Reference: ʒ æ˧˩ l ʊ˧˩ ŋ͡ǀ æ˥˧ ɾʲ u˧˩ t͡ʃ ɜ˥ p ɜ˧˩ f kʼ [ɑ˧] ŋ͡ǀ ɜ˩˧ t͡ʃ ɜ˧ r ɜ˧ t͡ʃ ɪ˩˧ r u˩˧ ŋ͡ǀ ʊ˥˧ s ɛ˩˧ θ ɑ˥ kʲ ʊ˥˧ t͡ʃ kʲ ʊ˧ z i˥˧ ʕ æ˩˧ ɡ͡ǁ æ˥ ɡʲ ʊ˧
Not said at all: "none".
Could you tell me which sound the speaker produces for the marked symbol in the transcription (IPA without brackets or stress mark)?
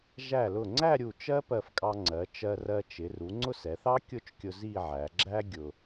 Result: ɑ˧